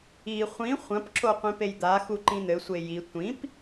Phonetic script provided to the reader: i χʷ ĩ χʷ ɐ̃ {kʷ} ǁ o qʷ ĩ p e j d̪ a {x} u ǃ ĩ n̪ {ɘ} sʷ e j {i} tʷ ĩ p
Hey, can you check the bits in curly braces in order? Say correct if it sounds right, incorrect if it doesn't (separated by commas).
incorrect, correct, correct, correct